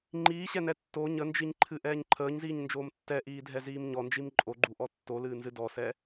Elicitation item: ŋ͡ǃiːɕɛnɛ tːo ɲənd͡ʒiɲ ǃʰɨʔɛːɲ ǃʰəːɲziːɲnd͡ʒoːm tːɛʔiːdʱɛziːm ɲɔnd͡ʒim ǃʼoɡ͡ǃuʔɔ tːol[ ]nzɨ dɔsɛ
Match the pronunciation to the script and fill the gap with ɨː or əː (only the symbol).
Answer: ɨː